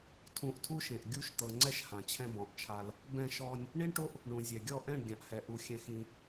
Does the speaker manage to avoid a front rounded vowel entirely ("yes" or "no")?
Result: yes